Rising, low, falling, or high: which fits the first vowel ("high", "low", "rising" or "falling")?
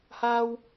high